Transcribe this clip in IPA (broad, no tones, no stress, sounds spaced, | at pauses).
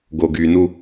ɡ o ɡ y n u